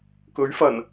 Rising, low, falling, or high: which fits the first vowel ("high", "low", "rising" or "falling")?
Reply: rising